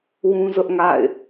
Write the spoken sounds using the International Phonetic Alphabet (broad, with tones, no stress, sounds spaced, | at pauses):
w ũ˦ z ʊ˦ ʔ ŋ a̰˦˨ ɪ̯